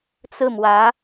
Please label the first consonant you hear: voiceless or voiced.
voiceless